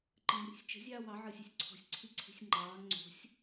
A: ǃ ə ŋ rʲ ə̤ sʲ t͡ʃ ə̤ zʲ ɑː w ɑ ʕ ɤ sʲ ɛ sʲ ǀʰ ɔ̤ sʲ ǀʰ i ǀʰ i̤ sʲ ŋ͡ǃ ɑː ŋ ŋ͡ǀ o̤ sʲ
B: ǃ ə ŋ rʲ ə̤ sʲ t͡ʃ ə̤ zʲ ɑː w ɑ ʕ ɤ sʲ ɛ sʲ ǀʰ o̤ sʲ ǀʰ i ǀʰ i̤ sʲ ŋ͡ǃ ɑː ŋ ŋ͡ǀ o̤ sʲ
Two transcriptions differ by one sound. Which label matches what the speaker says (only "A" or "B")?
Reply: A